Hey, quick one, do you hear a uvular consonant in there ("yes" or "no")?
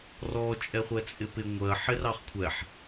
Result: yes